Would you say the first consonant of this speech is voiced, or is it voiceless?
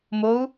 voiced